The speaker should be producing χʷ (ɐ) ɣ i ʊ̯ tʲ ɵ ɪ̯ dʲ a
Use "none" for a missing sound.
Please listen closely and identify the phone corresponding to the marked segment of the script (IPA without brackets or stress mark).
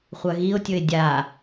ɐ